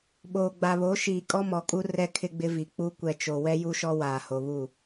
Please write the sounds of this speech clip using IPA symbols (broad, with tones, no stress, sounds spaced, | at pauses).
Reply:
ɓ oː˨ ɡ͡b a˨ β o˨˦ ʃ iː˨ kʼ ɔ˦ m ɔ˨ kʼ u˦ r ɛ˦ kʰ ɪ˦ ɡ͡b ɪ˦ v i˨ k͡p u˦ kʷ ɛ˨ t͡ʃ o˨ w ɛ˦ j u˦ ʃ ɔ˦ w aː˨ h o˨ β u˦˨